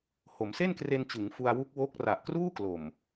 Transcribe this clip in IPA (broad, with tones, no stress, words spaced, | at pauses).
ho˩˦mse˥˩nkre˧nt͡ɕɯ˩˦ŋ fu˧a̯wu˦˥k̚ wo˦˥k̚ ra˨˩ʔkruː˥˩klo˨˩m